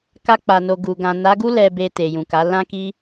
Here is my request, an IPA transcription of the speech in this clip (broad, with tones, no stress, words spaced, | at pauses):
ka˧k͡pa˨no˨ ɡu˨ ɡã˨na˨˦ɡu˦ lɛ˧be˧ te˨jũ˨ka˨˦ lã˦ki˦